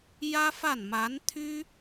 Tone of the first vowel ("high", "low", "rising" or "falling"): high